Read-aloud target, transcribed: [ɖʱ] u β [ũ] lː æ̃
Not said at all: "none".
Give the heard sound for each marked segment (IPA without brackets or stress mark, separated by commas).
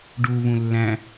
ɖ, ũ